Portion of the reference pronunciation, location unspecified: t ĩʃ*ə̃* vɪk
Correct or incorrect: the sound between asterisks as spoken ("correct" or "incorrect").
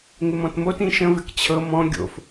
correct